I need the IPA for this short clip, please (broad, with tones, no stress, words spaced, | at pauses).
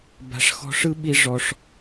ba̤˦ʂ xɔ̤˦ʂɯ˥ɓi˦ ʐɔ˦ʂ